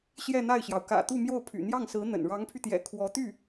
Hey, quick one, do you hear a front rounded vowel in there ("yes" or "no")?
yes